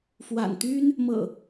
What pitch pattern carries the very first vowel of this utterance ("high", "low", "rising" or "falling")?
low